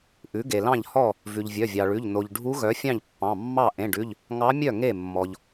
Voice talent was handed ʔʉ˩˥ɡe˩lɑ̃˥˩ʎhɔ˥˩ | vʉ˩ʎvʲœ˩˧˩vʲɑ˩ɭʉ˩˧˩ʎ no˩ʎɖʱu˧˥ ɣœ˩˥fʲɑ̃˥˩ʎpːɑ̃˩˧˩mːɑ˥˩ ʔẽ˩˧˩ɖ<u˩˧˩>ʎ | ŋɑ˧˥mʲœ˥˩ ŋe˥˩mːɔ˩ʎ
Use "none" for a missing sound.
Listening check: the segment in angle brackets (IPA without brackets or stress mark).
ʉ˩˧˩